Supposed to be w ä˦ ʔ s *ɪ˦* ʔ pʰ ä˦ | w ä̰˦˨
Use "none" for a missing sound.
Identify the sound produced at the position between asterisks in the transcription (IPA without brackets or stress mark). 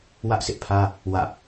ɪ˦